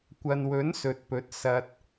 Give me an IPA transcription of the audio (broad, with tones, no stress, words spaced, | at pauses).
kʷɐ˨nwɵ˨˥n sɵ˨t̚pɵ˨˥t̚ sɐ˨t̚